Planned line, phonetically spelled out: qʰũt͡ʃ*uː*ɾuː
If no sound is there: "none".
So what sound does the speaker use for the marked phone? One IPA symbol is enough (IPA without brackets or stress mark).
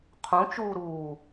uː